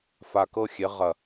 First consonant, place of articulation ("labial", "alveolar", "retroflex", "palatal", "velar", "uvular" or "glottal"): labial